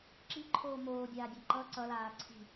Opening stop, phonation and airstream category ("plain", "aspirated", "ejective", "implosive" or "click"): click